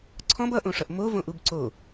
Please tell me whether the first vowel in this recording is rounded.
yes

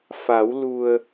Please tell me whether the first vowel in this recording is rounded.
no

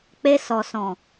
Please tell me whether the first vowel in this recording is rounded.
no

